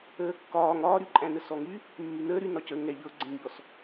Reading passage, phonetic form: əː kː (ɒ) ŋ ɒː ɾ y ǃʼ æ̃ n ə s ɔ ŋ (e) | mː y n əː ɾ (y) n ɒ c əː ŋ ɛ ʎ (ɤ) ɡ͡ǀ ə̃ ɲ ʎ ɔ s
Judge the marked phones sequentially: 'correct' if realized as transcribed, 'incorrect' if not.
incorrect: ɒː, incorrect: y, correct, correct

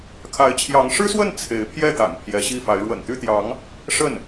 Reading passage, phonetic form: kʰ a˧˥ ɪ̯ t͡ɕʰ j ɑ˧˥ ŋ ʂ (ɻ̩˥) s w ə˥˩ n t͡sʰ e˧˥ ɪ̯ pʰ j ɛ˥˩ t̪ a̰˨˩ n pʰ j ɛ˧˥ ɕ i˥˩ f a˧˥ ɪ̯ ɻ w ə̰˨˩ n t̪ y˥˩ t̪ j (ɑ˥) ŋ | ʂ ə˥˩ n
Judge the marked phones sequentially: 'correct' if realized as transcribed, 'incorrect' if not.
correct, incorrect: ɑ˧˥

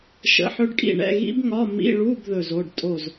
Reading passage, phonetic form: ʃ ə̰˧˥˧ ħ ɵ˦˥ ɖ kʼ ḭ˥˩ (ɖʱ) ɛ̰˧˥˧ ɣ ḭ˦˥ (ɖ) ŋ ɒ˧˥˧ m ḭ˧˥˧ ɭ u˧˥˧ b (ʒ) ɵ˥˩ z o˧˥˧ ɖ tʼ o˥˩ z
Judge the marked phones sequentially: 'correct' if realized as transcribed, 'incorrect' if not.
incorrect: ɳ, incorrect: b, incorrect: ð

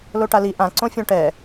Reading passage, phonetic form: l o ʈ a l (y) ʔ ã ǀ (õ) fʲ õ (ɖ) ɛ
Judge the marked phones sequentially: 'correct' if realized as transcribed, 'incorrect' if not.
incorrect: i, correct, incorrect: ʈ

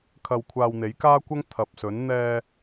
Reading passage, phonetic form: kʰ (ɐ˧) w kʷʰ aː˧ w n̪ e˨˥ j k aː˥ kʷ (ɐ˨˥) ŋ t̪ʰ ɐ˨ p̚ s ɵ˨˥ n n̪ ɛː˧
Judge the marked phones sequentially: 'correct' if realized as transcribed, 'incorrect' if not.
correct, incorrect: ɐ˥

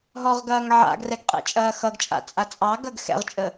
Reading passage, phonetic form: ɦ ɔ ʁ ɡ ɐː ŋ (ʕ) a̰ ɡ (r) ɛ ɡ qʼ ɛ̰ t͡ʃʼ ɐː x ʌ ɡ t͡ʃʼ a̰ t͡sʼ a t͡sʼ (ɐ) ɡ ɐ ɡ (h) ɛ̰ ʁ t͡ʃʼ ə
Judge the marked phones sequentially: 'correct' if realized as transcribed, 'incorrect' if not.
correct, correct, incorrect: ɑ, incorrect: x

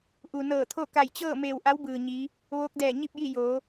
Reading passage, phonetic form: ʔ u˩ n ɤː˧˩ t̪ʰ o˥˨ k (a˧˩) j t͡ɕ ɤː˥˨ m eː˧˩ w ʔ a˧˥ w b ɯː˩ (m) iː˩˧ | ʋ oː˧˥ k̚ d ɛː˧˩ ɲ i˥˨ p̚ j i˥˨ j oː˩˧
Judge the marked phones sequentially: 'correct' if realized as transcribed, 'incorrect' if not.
correct, incorrect: ɲ

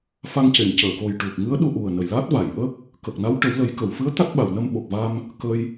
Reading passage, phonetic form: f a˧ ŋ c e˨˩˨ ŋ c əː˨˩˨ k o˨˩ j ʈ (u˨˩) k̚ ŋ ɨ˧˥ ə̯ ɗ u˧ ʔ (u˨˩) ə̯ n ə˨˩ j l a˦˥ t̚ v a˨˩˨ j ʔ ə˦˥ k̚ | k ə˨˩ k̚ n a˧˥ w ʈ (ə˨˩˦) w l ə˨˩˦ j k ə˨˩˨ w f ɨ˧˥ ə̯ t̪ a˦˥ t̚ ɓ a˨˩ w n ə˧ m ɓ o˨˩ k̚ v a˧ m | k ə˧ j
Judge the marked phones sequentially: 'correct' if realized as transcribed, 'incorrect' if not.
correct, correct, correct

